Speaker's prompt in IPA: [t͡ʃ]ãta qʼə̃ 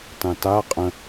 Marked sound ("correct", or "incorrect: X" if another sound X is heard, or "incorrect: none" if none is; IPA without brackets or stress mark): incorrect: t